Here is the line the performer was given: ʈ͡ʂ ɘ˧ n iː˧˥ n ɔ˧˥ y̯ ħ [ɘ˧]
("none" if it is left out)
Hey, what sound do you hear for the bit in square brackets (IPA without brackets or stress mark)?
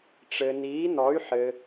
ɘ˧